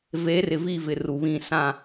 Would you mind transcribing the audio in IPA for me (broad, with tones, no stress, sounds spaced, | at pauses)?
v eː˨˦ r ɪ˨ v i˦˨ v ɪ˨ r u˨ β ĩ˦˨ s ã˦˨